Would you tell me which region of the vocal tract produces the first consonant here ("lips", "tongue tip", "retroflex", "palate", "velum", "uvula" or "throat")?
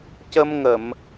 palate